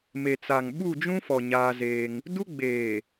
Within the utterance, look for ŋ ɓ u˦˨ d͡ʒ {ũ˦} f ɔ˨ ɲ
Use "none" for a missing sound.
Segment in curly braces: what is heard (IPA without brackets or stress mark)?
ũ˦